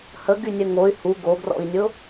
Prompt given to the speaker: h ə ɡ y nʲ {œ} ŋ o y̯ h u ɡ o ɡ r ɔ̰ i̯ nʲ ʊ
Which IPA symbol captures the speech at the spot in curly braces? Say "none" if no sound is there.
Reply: œ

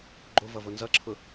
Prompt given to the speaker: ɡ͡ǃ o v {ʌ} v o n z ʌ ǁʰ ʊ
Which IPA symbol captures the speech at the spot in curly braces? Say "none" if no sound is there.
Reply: ʌ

